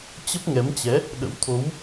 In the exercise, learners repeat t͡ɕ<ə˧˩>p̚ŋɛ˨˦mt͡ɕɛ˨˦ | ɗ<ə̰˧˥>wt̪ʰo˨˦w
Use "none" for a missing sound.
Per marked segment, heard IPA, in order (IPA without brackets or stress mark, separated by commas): ə˦˥, ə̰˧˥